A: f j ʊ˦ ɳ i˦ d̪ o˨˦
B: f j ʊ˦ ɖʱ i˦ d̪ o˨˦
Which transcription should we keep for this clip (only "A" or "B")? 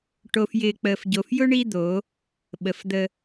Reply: A